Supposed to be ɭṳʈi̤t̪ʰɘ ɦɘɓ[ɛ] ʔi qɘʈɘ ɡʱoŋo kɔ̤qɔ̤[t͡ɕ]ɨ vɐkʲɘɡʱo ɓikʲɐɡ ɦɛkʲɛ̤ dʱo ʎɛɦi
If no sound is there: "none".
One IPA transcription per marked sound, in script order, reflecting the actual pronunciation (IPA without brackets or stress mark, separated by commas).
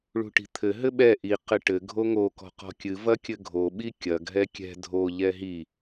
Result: ɛ, kʲ